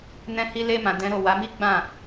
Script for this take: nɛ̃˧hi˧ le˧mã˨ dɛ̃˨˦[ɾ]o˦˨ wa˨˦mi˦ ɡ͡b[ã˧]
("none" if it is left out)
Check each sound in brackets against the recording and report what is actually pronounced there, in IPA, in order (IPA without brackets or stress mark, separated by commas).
ɾ, ã˦˨